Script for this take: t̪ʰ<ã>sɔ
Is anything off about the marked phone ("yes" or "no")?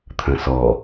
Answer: yes